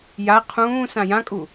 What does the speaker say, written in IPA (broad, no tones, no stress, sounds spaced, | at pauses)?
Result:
j a qʰ ũː s ã j ã kʼ u